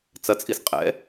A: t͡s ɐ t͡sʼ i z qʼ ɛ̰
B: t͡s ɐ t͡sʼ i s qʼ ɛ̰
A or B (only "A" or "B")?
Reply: B